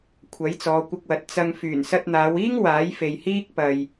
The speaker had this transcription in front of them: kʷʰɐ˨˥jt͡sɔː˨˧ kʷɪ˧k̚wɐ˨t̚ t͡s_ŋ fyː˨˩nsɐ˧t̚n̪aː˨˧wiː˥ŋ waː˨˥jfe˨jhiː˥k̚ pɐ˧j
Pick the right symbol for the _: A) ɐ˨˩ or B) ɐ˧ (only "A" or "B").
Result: B